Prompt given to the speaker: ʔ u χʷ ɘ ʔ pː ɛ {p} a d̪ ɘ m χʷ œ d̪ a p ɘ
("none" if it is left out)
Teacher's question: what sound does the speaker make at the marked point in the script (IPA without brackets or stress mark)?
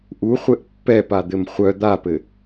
p